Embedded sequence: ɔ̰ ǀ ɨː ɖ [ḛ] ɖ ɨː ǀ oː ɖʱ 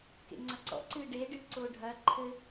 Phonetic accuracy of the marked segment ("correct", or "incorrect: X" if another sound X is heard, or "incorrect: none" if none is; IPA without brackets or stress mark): incorrect: e